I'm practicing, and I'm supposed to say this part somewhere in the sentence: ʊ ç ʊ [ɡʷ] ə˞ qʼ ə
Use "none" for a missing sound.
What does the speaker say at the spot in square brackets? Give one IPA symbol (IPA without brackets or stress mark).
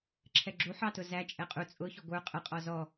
ɡʷ